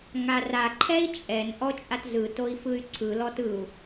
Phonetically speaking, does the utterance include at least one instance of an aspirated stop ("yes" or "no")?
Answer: yes